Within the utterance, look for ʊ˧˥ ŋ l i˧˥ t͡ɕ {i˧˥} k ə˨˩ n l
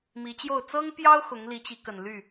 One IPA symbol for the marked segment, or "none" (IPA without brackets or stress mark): i˧˥